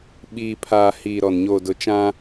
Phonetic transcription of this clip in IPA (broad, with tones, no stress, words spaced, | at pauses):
ɓiː˨pʰaː˨hiː˨ ɾɔ˨n ɲoː˨dʊ˨ t͡ʃã˦